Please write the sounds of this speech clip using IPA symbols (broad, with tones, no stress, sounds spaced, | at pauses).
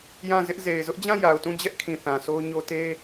j ã˦˨ z ɪ˦ ʔ z e˨ ɪ̯ z ʊ˦ ʔ d͡ʑ ã˦˨ j a˨ ʊ̯ t ũ˦˨ d͡ʑ ɛ˦ ʔ kʰ ĩ˨ θ ã˨ s o˦ ʊ̯ ɲ o˦ t e˦